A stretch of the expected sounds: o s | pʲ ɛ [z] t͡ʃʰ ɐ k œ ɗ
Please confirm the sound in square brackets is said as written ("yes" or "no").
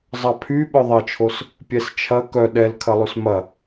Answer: no